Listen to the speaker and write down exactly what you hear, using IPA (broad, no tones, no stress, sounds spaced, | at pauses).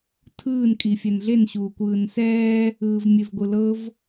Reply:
tʰ ɯː n kʼ i fʲ ɛ n ɮ e n ɕ uː kʷ ɯː n s ɛː | ɯː v mʲ e v ɡʷ ɯ l ɤ v